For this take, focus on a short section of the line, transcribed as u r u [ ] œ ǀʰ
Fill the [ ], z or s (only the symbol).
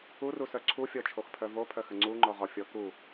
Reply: s